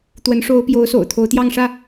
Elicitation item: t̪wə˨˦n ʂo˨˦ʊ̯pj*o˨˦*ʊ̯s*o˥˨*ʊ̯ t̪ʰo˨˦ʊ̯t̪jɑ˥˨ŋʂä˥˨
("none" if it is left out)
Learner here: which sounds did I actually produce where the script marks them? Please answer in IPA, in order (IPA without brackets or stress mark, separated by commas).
o˨˦, o̰˨˩